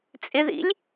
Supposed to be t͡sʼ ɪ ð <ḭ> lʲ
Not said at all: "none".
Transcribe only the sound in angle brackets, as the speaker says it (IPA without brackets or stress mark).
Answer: ḭ